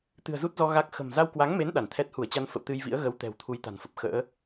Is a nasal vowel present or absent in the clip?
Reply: absent